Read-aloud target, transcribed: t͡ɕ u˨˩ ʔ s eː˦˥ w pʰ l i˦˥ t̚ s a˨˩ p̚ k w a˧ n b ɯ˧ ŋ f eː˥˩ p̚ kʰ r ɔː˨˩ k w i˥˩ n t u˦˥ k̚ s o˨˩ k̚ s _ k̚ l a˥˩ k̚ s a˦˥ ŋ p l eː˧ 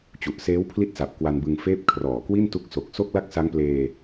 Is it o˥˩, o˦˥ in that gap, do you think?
o˥˩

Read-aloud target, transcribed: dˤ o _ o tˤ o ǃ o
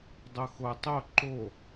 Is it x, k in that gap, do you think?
x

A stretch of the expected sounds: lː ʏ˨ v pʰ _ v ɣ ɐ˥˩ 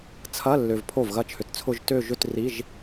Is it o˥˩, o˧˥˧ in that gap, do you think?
o˥˩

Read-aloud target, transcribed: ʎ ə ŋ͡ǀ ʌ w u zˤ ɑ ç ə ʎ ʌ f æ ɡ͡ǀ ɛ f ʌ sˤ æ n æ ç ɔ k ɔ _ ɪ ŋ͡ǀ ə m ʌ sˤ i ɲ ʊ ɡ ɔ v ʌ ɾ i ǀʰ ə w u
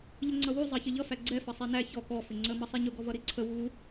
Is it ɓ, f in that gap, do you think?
f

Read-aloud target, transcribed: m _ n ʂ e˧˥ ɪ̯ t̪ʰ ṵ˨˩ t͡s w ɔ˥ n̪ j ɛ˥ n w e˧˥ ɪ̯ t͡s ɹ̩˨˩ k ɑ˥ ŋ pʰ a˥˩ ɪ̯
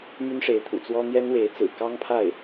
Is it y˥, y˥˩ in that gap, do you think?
y˥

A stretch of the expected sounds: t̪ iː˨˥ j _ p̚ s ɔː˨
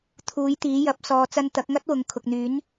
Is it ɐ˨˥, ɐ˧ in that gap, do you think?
ɐ˨˥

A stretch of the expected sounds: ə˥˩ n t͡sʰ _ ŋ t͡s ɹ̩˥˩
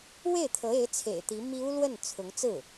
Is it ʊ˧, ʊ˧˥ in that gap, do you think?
ʊ˧˥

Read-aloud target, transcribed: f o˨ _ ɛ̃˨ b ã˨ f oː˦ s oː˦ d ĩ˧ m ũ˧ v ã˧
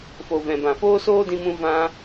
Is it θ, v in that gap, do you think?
v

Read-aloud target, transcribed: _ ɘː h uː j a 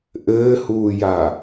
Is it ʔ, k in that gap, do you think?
ʔ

